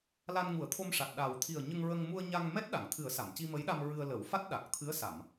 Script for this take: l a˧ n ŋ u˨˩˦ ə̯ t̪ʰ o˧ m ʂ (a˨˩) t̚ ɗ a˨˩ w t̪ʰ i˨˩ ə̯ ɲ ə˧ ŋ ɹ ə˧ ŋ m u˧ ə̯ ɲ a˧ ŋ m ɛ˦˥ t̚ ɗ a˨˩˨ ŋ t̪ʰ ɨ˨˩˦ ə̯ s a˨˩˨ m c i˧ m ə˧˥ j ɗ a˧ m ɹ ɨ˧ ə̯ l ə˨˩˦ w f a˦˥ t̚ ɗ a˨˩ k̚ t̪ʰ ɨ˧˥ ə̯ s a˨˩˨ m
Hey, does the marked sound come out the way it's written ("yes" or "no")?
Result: yes